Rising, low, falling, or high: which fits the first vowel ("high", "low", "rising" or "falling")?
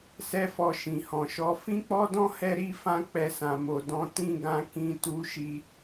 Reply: high